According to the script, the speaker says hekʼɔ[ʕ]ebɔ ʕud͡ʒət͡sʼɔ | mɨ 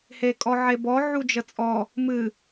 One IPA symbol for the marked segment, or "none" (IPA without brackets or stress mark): ʕ